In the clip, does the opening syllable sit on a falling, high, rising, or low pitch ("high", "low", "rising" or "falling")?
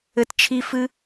high